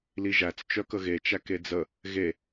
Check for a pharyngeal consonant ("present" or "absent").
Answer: absent